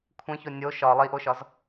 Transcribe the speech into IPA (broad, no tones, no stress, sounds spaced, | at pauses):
kʷʰ ẽ ç o nʲ o ʃ ɒ lˠ i ʔ o ʃ ɒ z